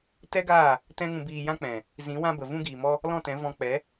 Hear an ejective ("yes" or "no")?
no